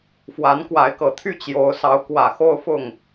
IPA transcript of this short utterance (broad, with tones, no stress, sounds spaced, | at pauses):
f w a˧˥ n k w a˧˥ ɪ̯ k ɤ˨˩ t̪ʰ y˥˩ t͡ɕ j o˧˥ ʊ̯ s ɑ˧˥ ʊ̯ k w ä˨˩ x o˥˧ ʊ̯ f ʊ˥˩ ŋ